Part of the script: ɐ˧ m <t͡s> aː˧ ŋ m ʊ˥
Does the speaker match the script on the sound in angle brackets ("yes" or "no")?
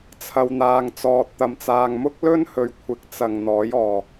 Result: yes